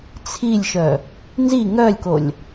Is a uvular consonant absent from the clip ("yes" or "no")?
yes